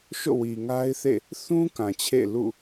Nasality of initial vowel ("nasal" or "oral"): oral